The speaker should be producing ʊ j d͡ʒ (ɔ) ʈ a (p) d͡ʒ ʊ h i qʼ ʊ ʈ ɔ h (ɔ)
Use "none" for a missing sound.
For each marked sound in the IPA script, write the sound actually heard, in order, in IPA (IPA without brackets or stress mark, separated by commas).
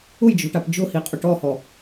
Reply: ɔ̤, p, ɔ